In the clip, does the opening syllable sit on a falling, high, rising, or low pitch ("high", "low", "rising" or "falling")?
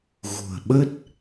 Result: low